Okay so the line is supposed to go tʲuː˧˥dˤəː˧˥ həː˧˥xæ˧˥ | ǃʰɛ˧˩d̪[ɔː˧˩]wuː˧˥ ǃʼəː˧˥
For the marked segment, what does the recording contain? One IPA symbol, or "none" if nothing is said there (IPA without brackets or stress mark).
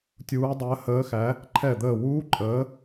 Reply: əː˧˩